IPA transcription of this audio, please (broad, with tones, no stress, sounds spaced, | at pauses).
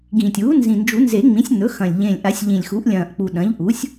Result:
ɡ ĩ˨˩ tʲ uː˩˥ n z ĩ˨˩ n d͡ʒ u˨˩˦ n z e˨˩˦ ŋ͡m ĩ˩˥ sʲ n̪ ɵ˩˥ x ɐ̃˨˩ lʲ ʎ ẽ˨˩ lʲ ʔ a˨˩˦ sʲ ʎ ĩ˨˩ lʲ x u˩˥ ʔ lʲ ɐ̃ː˨˩ ʔ k͡p u˨˩ ɗ ɐ̃˩˥ ʎ ʔ u˩˥ sʲ